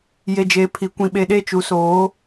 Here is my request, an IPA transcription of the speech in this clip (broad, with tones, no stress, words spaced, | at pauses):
je˨d͡ʒeː˨pʰi˨kʷĩ˨ ɓe˨ɗe˦˨t͡ʃu˨soː˨˦